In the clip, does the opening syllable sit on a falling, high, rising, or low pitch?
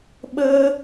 high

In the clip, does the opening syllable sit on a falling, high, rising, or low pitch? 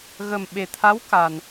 low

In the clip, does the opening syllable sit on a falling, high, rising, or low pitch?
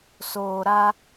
low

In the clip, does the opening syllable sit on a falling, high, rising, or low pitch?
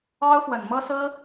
high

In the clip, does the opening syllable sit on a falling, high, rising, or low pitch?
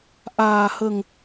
low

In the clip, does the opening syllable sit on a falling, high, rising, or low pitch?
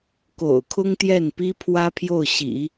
low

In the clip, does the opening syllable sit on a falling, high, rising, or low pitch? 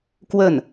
falling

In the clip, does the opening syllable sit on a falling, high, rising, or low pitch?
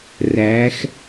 rising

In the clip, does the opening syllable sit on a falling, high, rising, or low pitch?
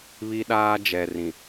high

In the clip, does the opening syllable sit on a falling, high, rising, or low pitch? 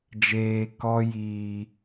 low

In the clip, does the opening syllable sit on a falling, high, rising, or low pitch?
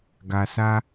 low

